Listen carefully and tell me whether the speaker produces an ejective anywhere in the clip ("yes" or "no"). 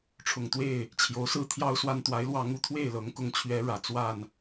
no